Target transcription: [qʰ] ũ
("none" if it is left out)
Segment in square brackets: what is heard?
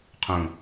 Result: qʰ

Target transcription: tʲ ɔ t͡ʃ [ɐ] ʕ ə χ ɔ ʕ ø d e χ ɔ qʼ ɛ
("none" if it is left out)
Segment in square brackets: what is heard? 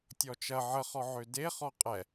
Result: ɐ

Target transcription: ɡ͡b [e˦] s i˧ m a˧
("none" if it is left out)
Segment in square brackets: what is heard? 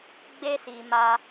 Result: e˦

